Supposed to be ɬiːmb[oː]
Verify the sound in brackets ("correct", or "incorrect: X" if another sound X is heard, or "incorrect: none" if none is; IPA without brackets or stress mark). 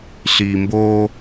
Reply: correct